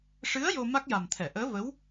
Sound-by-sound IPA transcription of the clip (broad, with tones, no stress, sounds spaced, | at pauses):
ʂ ɨ˧˥ ə̯ j o˧ m a˦˥ k̚ j a˨˩ m t̪ʰ ɛ˨˩˨ ʔ əː˧˥ v ə˧˥ w